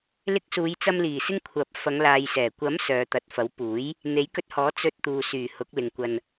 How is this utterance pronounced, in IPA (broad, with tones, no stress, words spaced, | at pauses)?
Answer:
lɪ˧k̚suː˨˧jt͡sɐ˧m liː˨˩sɪ˧ŋ kʷʰɐ˨˥p̚ fɐ˨˧ŋlaː˨jsɛː˨˩ kʷɐ˨˥m sœː˨˧t̪ɐ˨t̚ fɐ˨˥wpuː˨˥j | n̪e˨˥jkɵ˧t̚hɔː˨˥ t͡sɵ˧t̚t̪uː˨ syː˨˩hʊ˨˥k̚lɪ˨ŋ kʷɐ˧n